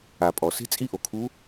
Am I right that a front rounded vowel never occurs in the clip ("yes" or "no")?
yes